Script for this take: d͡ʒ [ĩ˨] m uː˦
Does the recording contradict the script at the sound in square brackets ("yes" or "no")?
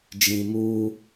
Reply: no